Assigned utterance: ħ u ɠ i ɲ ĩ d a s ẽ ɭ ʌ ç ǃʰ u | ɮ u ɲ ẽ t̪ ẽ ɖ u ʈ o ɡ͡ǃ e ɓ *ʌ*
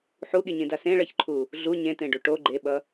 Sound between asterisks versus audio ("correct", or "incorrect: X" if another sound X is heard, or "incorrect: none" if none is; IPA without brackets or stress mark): correct